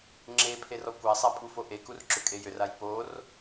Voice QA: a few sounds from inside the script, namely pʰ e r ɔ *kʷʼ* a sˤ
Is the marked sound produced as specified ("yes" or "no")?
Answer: no